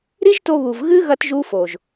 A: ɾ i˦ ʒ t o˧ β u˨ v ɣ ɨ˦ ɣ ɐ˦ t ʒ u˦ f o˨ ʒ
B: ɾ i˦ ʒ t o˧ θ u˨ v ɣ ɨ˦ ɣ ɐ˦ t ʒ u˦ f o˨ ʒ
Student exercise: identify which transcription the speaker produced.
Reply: A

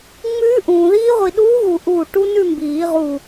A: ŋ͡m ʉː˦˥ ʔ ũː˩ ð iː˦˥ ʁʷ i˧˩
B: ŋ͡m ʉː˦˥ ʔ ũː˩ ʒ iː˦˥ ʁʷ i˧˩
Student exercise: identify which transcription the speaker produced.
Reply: A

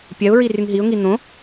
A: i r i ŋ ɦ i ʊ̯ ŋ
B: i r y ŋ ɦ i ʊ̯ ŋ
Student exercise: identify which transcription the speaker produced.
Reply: B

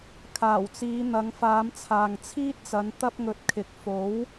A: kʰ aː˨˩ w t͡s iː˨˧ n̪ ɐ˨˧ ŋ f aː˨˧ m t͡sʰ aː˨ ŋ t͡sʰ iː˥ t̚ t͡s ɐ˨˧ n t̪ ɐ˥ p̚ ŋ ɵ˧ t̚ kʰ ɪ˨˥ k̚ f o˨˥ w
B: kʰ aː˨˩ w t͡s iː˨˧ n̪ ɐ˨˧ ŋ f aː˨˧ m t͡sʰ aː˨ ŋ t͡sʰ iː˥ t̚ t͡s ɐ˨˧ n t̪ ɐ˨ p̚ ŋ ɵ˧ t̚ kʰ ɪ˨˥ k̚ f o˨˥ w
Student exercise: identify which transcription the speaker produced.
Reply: A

